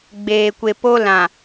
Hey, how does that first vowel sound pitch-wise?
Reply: low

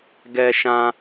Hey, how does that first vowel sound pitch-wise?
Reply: high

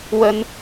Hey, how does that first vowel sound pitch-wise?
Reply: high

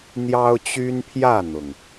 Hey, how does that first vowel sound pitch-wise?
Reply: high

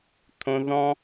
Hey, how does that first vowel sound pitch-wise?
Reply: high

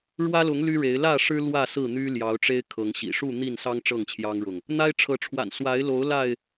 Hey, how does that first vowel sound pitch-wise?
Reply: high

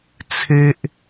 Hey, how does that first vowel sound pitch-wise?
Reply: high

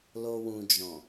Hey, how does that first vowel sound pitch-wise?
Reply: low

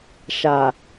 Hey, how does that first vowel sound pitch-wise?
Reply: low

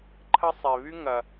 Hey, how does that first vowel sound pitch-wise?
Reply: high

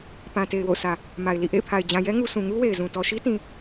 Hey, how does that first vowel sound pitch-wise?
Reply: low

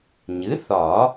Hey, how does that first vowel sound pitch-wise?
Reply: rising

